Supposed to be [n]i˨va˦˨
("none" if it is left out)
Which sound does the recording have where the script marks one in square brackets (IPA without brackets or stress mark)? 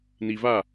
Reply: n